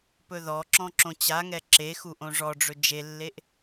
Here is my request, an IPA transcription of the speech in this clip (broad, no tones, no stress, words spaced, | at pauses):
pɵðɔǁɔ̃ ǁõt͡ɕaŋɛ ǁexu ʔõʐɔɖ͡ʐɵ d͡ʒelːeʔ